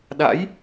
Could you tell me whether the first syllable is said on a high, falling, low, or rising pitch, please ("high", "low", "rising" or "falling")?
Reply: rising